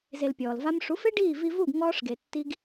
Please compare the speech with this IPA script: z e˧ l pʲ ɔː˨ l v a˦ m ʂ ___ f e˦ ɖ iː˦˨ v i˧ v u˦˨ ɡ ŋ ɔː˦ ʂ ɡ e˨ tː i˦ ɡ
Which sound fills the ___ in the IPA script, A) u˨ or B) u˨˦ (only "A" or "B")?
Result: B